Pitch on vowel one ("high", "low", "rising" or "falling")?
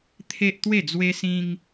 high